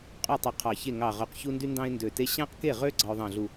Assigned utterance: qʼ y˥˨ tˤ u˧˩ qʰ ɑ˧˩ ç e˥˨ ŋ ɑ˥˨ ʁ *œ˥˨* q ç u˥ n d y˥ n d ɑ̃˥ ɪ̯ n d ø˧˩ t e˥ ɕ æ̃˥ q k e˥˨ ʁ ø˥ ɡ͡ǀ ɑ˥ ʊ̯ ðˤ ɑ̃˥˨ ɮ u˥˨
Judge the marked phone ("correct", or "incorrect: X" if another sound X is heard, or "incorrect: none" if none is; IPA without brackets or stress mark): correct